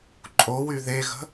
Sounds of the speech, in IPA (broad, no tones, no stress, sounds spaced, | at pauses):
ǃʼ o w y ð e ɣ ə̤